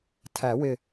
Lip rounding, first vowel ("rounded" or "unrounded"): unrounded